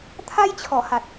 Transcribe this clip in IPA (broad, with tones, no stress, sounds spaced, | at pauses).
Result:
t̪ʰ a˦ j t͡ɕʰ ɔ˨˩ h a˨ t̚